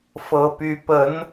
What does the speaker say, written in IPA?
f ɤ˦ p y˦ p ə˨˦ n

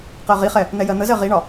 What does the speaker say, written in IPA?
q ɜ ʁ i χ ɛ | n̪ ɛ j ɜ n̪ ə z ɜ ʁ i ɳ ɒ

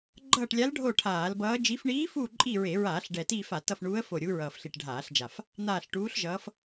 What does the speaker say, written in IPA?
ɡ͡ǃ ʌː˦˨ ʈ lʲ a˧˥ l ɖʱ o˦˨ ʈʰ aː˧˩˧ l b ʌː˧˥ d͡ʒ i˧˥ f ɳ iː˧˥ f uː˦˨ ǃʼ i˦˨ ɹ e˧˩˧ ɹ aː˧˩˧ ɬ ɖ ɛ˨˩ t iː˦˨ f a˧˩˧ t ʌ˦˨ f ɳ uː˧˥ ə̯ f o˦˨ ɾʲ u˧˥ ɹ ʌː˨˩ f ɬ i˨˩ ʈ ɖʱ aː˧˩˧ ɬ d͡ʒ a˨˩ f | n̪ aː˦˨ ɬ ʈ uː˧˥ ɬ ʒ ʌː˧˥ f

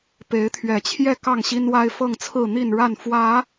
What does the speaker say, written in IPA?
p e˨˦ ɪ̯ t̪ʰ ɥ ɛ˨˩ t͡ɕʰ j ɛ˥˨ k ɑ˥˨ ŋ ɕ i˦ n w a˦ ɪ̯ f ɤ˥˨ ŋ t͡sʰ ɹ̩˥˨ n̪ i˥˨ n ɻ a˥˨ n f w ä˨˦

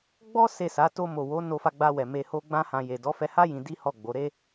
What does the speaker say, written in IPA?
ɡ͡b ɔ˦ s e˦˨ s a˨˦ t o˧ m o˨ w o˨˦ n o˧ f a˧ ɡ͡b a˧ w ɛ˨ m e˧ h o˦ ɡ͡b ã˦ h ã˧ j e˨ d ɔ˨˦ f ɛ˧ h a˦ j ĩ˧ d i˦ h ɔ˦˨ ɡ͡b o˨˦ ɾ e˦

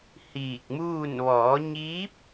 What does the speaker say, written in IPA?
h iː˧˩ k̚ m uː˥˨ n ʋ ɔː˩˧ ɲ iː˧˥ p̚

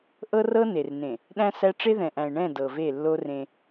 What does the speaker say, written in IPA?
ʔ ɤ˦ r ɤ˦ n e˨ r n ẽ˨ | ɗ æ̃˦ s æ˦ ʈ͡ʂ e˦ ð ɛ̃˨ ʔ æ̃˨ e̯ ɳ ɛ̃˦˨ d ɤ˨ v e˦˨ lː o˦ r ẽ˦

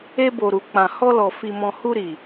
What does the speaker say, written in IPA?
e˧ b o˨ ɾ u˨ k͡p ã˨ h ɔ˧ l ɔ˨ f i˨ m ɔ̃˨ h u˧ ɾ i˨

